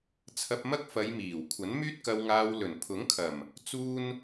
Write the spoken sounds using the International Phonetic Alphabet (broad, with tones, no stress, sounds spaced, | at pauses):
t͡sʰ ɐ˧ p̚ m ɐ˥ k̚ f ɐ˨˧ j m iː˨˩ w kʷʰ ɐ˨˥ n m yː˥ t̚ k ɐ˧ w ŋ aː˧ w l ɵ˨˩ n pʰ ʊ˨˥ ŋ kʰ ɐ˨˩ m | t͡s uː˥ n